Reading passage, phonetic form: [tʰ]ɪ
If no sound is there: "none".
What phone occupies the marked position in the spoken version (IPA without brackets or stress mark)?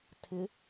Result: tʰ